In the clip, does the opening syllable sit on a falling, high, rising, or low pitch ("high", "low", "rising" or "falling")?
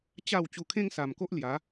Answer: falling